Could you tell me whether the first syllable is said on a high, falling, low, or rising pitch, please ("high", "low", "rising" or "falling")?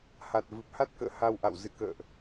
low